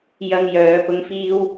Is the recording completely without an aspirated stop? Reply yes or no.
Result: yes